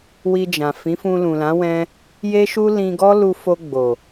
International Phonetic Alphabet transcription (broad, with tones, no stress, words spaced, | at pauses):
wi˧d͡ʒã˨ fĩ˨˦fũ˧lũ˨lã˨˦ wɛ̃˦ | je˦ʃu˦ lĩ˧ɡɔ˦ lu˧fo˧ɡ͡bo˨